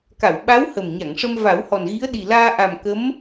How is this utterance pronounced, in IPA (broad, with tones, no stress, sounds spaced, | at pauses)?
k a˨˩˨ w ɓ a˧˥ w h ə˨˩ m ɲ a˨˩˨ ŋ ʂ ə˧ m v a˨˩˦ w h ɔ˨˩ n ɣ i˧˥ ə̯ ɗ i˨˩ l aː˧ ʔ a˨˩ m k ə˧˥ m